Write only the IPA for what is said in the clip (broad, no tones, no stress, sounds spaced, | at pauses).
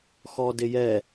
x ɔ d ɪ j ɛ